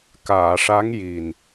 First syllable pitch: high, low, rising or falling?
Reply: low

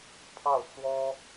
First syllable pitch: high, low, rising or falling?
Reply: falling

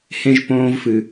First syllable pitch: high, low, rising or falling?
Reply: high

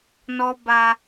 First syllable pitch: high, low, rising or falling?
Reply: high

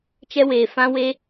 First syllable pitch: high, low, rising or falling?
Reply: high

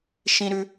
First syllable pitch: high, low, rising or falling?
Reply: high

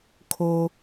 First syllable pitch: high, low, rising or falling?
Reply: low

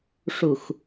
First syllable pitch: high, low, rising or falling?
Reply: low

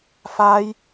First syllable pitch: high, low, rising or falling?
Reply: high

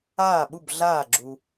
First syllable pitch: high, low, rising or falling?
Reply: falling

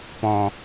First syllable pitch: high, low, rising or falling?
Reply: low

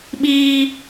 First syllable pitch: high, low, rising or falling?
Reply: high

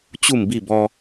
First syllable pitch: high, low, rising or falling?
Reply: falling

